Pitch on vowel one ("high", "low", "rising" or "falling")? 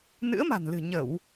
rising